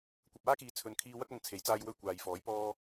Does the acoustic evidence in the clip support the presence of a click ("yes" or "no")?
no